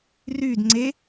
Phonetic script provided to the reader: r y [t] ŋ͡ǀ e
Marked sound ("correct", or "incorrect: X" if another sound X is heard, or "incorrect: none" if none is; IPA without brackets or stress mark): incorrect: d